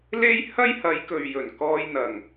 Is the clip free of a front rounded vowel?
yes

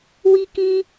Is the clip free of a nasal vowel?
no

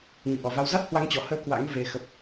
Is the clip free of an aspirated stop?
yes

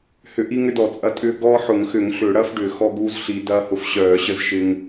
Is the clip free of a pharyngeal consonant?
no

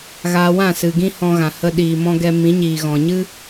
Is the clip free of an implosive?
no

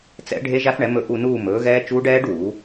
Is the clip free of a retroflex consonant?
no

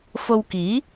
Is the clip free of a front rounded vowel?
yes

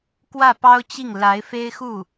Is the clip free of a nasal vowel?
yes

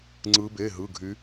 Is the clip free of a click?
no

